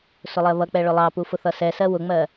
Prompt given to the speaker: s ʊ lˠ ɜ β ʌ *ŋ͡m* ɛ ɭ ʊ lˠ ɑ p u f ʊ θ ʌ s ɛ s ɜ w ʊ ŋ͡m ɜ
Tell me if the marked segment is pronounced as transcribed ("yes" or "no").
no